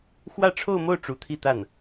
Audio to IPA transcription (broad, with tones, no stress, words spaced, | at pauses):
xwä˥˧ʈ͡ʂʰo˥˧ʊ̯mo˥˩ʊ̯ ʈ͡ʂu˧˥t̪ʰi˥˧t̪a˥˩n